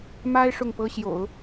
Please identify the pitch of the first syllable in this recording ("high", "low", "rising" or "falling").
high